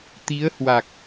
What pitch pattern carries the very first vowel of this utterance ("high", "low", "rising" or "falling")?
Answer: rising